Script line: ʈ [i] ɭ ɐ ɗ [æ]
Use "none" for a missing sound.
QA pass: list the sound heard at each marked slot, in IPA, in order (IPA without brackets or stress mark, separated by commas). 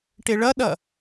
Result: e, ɐ